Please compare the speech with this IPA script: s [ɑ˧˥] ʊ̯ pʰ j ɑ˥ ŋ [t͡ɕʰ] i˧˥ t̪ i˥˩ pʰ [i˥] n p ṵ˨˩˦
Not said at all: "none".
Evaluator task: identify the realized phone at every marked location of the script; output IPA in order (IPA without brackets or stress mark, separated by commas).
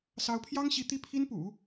ɑ˧˥, ɕ, i˥